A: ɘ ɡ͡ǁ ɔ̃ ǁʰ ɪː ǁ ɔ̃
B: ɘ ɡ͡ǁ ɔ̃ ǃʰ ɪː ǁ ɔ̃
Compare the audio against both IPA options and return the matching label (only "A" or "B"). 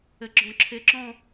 A